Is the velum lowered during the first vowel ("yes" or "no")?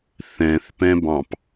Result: yes